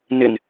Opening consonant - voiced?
yes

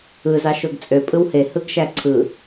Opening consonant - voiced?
yes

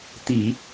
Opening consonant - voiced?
no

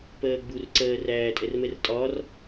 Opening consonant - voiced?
no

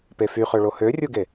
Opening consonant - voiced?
no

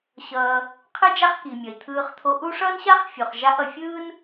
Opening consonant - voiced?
no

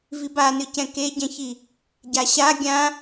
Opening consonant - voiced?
yes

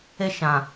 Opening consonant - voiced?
no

